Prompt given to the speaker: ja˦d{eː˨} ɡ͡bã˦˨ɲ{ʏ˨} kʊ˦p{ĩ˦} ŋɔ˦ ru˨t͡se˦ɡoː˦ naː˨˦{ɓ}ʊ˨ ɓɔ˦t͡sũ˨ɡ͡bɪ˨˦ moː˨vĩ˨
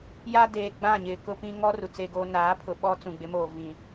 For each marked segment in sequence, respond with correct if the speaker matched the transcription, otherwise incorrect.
correct, incorrect, correct, incorrect

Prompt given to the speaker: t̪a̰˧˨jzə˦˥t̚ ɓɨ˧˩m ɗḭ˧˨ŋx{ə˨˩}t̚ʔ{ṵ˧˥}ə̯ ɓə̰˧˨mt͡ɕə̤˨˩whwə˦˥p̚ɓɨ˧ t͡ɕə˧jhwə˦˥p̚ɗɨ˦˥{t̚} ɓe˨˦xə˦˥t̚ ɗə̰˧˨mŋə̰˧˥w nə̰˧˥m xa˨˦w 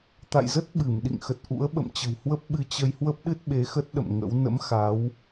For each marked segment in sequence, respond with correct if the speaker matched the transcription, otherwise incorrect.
correct, correct, correct

